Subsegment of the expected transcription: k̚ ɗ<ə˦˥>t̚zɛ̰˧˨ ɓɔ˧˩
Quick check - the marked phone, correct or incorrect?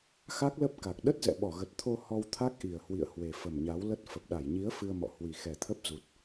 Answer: correct